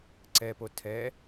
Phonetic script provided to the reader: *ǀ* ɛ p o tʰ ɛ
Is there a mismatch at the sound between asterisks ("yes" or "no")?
no